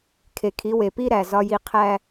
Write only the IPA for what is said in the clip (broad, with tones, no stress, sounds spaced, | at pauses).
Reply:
kʰ e˨ kʰ i˨˦ w e˨ p i˦ ɾ æ˨ z ɒ˦ j i˦ qʰ æ˦